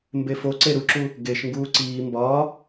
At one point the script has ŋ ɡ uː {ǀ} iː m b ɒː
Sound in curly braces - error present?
no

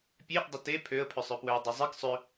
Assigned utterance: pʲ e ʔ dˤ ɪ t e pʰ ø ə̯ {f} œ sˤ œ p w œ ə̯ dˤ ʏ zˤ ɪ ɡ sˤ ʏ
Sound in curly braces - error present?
yes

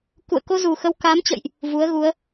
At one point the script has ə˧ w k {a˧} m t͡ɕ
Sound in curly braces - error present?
yes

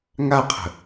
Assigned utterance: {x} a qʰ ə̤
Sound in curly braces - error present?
yes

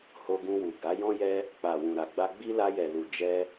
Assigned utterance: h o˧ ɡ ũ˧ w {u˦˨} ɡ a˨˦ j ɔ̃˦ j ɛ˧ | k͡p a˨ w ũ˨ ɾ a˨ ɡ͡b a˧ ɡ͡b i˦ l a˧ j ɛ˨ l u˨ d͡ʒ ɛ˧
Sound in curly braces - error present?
yes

